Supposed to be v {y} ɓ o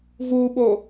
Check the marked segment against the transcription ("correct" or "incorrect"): incorrect